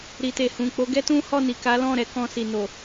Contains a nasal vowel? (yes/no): yes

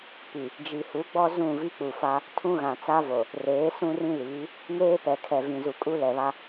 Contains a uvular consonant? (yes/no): no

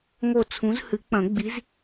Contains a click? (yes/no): no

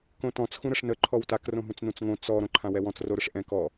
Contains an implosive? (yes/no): no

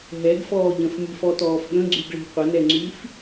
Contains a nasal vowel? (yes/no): yes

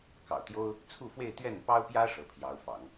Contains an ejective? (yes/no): no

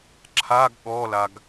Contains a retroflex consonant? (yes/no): no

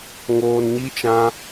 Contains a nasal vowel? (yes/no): yes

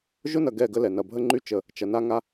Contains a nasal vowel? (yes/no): no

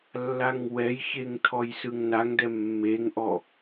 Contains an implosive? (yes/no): no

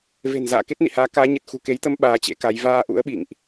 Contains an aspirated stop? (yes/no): no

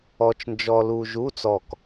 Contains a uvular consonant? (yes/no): no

